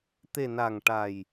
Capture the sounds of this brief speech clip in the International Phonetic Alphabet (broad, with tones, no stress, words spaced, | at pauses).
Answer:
t̪e˨˩ na˨˩ŋʈa˨˩j